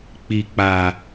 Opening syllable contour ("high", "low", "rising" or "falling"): low